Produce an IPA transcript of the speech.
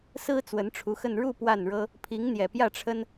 sɹ̩˥ t͡swə˧˥nʈ͡ʂʰu˧˥xə˥˧n ɻu˥˧ pwa˥˩nɻɤ˥ | pʰi˧˥ŋn̪jɛ˨˩pjä˥˩ʈ͡ʂʰə˥n

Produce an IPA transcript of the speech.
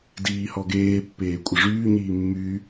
diːhɔ ɡeːpːeː kʷʼəʐyː ɲiːmːyː

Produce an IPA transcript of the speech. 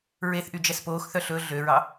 ɹeθʔy d͡ʒɛspoːxθœ ɬɵ ɮøɹɑ

